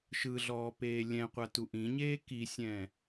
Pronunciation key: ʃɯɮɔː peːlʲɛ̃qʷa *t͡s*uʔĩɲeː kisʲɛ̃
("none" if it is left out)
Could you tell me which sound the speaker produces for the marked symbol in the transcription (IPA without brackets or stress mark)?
t